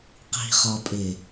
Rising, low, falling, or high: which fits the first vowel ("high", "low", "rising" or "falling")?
low